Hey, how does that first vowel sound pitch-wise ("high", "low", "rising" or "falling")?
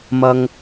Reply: high